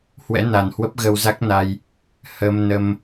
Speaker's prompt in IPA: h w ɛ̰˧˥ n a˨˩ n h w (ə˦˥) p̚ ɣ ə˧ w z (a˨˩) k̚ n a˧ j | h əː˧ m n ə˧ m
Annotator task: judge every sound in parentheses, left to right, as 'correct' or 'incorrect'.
correct, incorrect: a˦˥

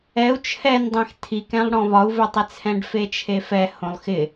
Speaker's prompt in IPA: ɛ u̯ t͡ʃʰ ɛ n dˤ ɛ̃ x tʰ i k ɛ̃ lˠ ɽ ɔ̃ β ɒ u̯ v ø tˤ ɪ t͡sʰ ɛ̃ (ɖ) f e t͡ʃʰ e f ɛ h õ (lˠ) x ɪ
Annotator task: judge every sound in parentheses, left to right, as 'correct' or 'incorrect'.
correct, correct

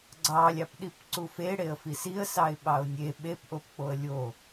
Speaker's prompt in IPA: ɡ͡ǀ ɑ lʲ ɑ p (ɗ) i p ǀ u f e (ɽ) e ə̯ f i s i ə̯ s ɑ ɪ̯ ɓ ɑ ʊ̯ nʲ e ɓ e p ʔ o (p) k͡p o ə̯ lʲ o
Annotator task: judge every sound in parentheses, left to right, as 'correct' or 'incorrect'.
correct, correct, correct

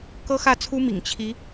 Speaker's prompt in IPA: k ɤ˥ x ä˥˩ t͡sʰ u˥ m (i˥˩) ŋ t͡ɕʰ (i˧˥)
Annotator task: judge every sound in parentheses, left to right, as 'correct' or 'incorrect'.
incorrect: ḭ˨˩, correct

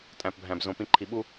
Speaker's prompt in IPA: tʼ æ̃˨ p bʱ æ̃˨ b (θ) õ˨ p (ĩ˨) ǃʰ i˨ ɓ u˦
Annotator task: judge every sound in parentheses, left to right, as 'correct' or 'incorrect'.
incorrect: z, correct

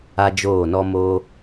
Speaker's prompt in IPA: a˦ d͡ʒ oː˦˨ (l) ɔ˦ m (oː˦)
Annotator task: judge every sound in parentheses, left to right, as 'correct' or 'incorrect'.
incorrect: n, correct

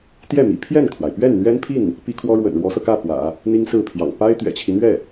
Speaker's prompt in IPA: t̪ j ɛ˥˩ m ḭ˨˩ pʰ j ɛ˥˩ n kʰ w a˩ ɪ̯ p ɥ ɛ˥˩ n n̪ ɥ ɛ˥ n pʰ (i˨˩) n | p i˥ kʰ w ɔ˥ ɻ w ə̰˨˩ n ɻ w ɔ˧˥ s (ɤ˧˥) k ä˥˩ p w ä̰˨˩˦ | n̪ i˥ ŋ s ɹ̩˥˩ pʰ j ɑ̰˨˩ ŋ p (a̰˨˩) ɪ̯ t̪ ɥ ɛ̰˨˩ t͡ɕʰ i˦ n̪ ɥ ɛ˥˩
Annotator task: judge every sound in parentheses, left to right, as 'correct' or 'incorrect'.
incorrect: i˥˩, incorrect: ɤ˧, incorrect: a˥

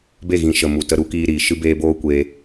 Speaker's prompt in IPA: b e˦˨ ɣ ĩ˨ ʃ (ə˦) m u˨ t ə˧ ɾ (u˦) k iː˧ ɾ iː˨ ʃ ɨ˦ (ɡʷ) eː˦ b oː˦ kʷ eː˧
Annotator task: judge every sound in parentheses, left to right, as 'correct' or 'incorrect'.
incorrect: ə˨, incorrect: u˨˦, incorrect: b

